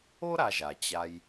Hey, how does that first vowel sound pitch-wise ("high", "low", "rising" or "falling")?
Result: high